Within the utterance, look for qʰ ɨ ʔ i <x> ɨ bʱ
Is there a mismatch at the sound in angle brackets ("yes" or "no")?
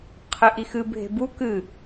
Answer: no